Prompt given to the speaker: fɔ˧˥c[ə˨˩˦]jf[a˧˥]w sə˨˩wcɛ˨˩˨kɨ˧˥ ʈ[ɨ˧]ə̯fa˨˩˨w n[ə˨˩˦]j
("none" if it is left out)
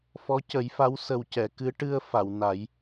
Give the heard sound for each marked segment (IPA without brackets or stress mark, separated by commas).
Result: ə˨˩˦, a˧˥, ɨ˧, a˨˩˦